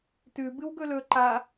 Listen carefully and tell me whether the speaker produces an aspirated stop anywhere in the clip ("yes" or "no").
no